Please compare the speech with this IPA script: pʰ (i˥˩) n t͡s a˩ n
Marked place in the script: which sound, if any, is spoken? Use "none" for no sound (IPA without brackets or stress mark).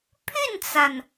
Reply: y˥˩